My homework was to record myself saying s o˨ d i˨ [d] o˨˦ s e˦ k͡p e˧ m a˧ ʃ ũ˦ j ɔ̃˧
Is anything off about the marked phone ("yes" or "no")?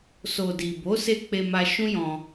yes